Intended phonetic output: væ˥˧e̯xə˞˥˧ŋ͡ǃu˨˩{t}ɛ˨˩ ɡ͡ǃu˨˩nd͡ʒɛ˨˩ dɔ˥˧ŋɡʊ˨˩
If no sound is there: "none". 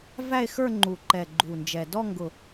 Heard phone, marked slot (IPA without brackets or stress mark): ǃ